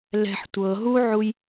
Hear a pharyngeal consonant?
yes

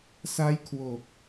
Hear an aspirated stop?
yes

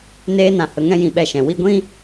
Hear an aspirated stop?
no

